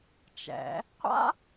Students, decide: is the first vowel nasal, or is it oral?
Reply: oral